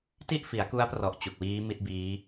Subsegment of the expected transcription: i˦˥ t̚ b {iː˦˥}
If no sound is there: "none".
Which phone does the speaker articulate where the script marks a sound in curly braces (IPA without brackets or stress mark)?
iː˦˥